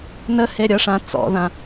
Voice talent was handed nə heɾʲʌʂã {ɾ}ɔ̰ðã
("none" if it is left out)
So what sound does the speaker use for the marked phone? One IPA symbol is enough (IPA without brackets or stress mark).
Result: t͡s